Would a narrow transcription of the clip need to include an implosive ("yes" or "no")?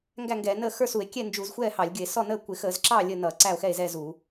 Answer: no